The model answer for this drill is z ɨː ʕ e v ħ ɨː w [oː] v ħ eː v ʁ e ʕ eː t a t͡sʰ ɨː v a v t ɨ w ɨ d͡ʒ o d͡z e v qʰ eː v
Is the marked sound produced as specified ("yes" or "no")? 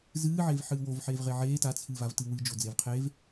no